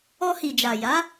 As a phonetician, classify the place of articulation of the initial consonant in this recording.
glottal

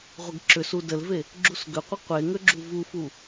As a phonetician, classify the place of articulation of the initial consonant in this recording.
uvular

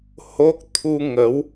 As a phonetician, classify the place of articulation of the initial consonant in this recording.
glottal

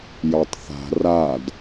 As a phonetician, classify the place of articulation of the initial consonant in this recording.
palatal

